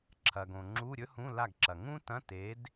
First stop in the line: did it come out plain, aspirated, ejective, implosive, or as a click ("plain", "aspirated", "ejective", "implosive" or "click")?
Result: click